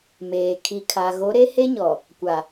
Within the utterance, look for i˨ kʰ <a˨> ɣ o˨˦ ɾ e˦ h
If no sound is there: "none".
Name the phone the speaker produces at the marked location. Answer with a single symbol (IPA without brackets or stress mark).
a˨